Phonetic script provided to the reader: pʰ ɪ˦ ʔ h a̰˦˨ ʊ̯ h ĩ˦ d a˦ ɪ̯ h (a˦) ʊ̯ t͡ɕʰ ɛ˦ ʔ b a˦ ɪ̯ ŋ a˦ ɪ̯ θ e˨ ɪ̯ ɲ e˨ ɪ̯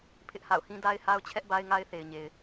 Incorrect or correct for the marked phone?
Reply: correct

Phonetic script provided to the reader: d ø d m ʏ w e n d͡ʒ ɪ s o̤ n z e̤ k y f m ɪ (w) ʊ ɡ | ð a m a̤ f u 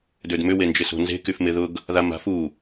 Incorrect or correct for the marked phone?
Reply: incorrect: ð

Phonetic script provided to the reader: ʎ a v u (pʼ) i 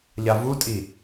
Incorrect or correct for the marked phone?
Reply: incorrect: tʼ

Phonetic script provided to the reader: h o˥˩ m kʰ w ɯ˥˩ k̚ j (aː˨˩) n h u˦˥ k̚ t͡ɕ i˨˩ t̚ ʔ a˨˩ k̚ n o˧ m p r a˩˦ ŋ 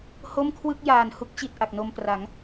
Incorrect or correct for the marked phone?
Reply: correct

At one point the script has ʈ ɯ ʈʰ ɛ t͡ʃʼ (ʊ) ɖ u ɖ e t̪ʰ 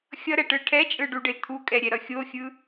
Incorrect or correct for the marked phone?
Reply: incorrect: ɯ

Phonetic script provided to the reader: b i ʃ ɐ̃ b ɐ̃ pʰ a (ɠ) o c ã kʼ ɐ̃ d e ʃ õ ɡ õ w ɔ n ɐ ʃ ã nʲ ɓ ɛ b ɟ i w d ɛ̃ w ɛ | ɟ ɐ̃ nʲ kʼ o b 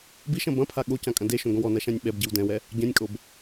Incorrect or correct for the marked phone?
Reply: correct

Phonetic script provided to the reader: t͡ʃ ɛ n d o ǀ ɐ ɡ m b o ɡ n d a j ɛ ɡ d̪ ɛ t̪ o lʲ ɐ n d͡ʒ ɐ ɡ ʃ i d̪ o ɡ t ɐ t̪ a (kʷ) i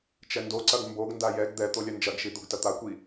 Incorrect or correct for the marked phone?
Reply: correct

